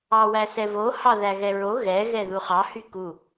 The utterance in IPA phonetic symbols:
ɑwæsɛvo hɑðæɣɛɹo ɣɛ ɣɛðuχɑ hyku

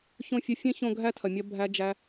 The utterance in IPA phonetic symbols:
çõ˦˨fʲɐ˦ fʲẽ˦çõ˧ ɡʱæ˦tʰɐ˨ mʲɐ˦ bʱæ˦d͡ʒæ˦

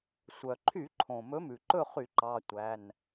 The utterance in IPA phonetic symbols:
sʷœ˩ǃʰy˧˩˧ǃʰõ˩ mɵ˨˥mʉ˩ǃɵ˥˨χy˧˩˧ ǃɑ˩˧˩tʷæ˩˧˩n

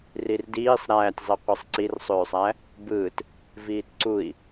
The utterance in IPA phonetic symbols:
rirdiːsˤ ɾæːtʲzˤiqʷisˤ ǀirsˤøːsˤæ | bɯːt | viːtǀui̯

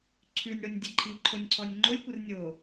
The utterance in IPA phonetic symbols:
ǀʰʉnʲɽonʲ dʲəǃʰi ǃʰonʲǀʰɔnʲŋ͡ǃolʲkʷər nʲo

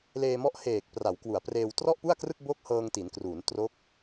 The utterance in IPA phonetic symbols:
leː˧mɔ˦˥ʔheː˨˩k̚ pra˩˦wkwu˩˦a̯preː˧w trɔ˥˩ʔpu˥˩a̯krɯ˥˩k̚ bo˥˩k̚hɤː˧ŋti˩˦nkruː˩˦n tro˦˥k̚

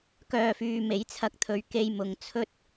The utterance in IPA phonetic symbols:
kœː˨fyː˨ me˨˥jt͡sʰɐ˧k̚t̪ʰɵ˨˧ɥ ke˧jmʊ˨ŋt͡sʰɵ˥t̚

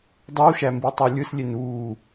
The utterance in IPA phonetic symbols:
dˤɯwʃæmbitˤi lʲɯslʲen uː

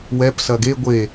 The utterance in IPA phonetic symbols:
wɛpsɐ ɡe ɡʷe

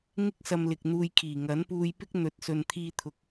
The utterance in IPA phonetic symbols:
ŋɪ˥k̚sɐ˧m lɪ˨k̚n̪uː˧jkʰiː˨˩ ŋɐ˨˥npuː˧j pɪ˥k̚ n̪ɵ˨t̚sɵ˨n t̪ʰiː˧t̪ʰʊ˨k̚

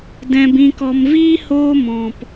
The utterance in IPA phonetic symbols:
dɛ̃˧bĩ˧kɔ˧m viː˦ hoː˦mɔ̃˨p

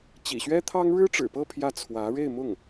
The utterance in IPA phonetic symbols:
t͡ɕḭ˨˩ɕɥɛ˥t̪ʰɑ˥ŋ ɻɻ̩˥ʈ͡ʂɻ̩˨˩pɤ˥˧ pʰjä˥˩t͡sʰwä˧˥ ɻe˥˧ɪ̯mʊ˥˩ŋ

